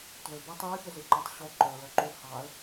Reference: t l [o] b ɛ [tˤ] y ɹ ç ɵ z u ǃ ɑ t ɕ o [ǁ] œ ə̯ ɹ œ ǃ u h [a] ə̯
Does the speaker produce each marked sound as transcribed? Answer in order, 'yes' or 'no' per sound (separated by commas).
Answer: no, yes, no, no